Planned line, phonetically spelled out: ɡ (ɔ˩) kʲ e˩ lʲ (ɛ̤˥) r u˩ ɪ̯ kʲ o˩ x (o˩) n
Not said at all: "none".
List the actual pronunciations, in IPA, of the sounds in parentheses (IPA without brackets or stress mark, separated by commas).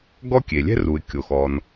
ɔ˥, ɛ̤˥, ɔ˩